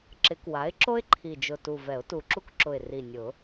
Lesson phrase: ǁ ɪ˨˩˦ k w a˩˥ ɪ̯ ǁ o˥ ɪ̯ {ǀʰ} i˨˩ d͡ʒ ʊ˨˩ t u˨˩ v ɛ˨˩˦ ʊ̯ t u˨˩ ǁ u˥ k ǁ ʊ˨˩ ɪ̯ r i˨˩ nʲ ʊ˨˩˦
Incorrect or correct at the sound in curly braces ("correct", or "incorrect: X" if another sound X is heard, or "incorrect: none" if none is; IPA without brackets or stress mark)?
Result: incorrect: ǃʰ